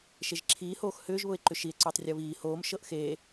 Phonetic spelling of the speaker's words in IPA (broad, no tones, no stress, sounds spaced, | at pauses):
ʃ e ʒ ǁʰ iː h oː x h ʏː ʒ β ʊ e̯ ǃ ʏ ʃ i e̯ ǀ ʏː tˤ rʲ ɤ β iː h oː m ʃ ɤ ʔ x eː